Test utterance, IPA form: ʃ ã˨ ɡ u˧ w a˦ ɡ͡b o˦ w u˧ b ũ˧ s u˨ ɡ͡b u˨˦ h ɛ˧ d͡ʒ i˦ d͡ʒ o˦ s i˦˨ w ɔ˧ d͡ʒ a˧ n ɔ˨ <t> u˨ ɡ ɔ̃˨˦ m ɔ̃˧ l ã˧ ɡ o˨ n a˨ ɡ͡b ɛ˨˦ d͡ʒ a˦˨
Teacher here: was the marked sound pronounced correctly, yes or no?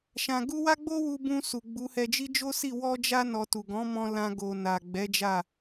yes